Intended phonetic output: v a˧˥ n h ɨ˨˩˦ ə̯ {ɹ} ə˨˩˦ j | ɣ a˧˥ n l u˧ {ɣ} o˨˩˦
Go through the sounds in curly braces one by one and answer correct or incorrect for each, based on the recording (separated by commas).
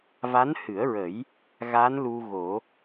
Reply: correct, correct